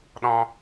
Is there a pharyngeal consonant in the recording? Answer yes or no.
no